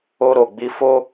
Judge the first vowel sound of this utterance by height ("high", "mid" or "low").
mid